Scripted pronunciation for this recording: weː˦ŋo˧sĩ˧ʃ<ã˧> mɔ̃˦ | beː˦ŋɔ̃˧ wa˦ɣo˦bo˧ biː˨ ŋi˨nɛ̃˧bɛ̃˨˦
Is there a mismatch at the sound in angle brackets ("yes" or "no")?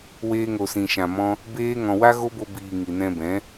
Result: no